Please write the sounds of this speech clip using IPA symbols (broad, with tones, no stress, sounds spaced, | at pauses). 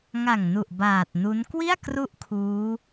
ŋ a˨˩ ŋ n u˨˩ ʔ b aː˨˩ t̚ n u˦˥ n k w i˥˩ a̯ k r u˦˥ ʔ kʰ uː˦˥